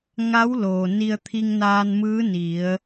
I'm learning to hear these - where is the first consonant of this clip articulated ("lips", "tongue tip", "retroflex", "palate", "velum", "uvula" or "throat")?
velum